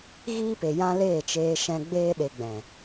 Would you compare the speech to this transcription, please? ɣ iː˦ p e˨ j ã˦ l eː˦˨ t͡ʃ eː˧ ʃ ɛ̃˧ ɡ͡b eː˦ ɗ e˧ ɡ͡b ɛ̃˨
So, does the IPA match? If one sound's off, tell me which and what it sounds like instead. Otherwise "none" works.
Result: none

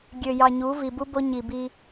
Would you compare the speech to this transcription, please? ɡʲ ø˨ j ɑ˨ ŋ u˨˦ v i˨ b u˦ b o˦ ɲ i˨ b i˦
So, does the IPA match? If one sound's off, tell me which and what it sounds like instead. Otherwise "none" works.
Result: ŋ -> ɲ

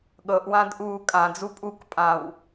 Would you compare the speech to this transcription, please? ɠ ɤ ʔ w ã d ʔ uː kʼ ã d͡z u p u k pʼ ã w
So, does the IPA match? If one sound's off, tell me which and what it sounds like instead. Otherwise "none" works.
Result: p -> pʼ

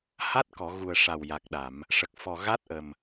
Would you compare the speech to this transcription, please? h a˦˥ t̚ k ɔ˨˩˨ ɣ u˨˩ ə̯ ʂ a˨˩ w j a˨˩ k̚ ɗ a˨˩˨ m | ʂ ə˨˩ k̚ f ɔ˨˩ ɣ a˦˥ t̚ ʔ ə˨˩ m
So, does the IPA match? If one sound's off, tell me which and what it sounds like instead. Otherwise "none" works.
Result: none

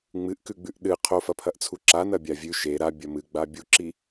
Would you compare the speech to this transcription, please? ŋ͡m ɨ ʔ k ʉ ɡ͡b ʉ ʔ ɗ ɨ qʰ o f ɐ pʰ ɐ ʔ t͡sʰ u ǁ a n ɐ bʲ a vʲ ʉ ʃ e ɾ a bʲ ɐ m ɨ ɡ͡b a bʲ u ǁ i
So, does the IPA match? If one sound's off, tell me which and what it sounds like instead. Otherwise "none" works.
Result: none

